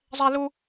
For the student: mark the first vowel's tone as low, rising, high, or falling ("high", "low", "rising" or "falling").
high